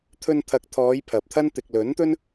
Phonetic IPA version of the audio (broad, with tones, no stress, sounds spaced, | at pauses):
t̪ʰ ɵ˧ n t̪ʰ ɐ˨˥ k̚ t̪ʰ ɔː˨˧ j pʰ ɐ˨ p̚ t̪ʰ ɐ˥ n t̪ ɪ˨ k̚ l ɵ˨˥ n t̪ ɵ˥ n